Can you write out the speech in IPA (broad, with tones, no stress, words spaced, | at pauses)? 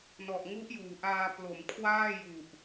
nɔ˨˩ʔŋu˦˥ʔjuː˩˦ʔaː˧ plo˩˦mkʰwaː˥˩ ju˨˩ʔ